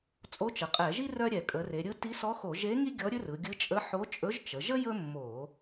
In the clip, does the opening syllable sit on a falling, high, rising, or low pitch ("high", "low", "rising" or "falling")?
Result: rising